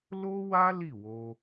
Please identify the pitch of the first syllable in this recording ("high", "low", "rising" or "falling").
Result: high